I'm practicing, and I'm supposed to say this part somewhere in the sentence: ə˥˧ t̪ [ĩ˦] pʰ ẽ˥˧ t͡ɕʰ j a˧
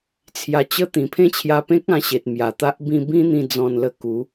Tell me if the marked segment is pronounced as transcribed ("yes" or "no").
no